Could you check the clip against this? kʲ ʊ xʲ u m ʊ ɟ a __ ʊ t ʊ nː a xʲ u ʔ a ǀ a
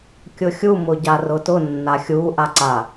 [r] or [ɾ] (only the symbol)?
r